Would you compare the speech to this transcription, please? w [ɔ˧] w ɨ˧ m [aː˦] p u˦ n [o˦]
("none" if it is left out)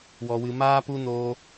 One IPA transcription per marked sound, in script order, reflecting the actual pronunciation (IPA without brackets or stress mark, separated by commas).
ɔ˧, aː˦, o˦